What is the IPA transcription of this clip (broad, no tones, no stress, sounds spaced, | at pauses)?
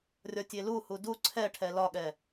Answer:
rʲ ɒ tʲ e l u h u d u ǀʰ ɛ ʈʰ ɛ l ɒ ɠ ɛ